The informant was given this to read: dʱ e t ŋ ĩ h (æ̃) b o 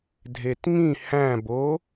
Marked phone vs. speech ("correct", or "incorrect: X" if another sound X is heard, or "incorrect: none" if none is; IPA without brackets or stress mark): correct